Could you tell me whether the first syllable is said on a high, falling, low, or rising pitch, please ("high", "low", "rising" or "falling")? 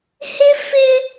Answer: high